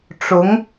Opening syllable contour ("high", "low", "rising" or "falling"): rising